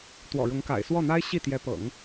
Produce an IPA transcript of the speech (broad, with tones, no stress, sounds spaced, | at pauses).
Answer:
t̪ w ɔ̰˨˩ ɻ ʊ˧˥ ŋ k a̰˨˩ ɪ̯ s w ɔ˥˩ n̪ a˥ ɪ̯ ɕ i˥˩ t̪ j ɛ˧˥ p ɤ̰˨˩˦ ŋ